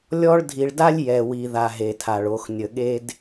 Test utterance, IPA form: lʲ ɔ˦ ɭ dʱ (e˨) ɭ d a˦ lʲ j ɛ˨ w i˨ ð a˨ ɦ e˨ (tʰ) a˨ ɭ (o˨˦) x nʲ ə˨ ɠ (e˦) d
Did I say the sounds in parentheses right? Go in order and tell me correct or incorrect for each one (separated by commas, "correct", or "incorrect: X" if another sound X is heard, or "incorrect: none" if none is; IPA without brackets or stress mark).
incorrect: i˨, correct, correct, correct